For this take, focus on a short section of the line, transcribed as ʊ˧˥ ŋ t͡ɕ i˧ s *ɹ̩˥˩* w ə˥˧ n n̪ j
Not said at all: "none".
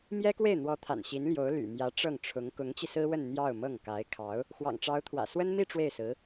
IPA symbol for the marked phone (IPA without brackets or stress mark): ɹ̩˥